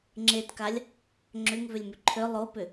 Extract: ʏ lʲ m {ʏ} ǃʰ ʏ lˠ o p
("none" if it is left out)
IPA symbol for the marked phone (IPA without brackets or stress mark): ʏ